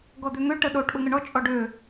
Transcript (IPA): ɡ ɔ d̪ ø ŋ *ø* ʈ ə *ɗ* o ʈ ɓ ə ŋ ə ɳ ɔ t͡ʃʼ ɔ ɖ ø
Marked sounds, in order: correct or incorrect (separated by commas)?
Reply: correct, correct